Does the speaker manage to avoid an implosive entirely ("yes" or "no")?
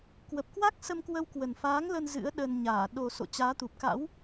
no